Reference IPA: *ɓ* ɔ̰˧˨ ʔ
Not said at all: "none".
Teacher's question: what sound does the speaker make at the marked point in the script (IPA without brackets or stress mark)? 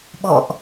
ɓ